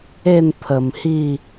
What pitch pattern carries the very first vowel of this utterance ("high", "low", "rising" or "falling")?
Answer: falling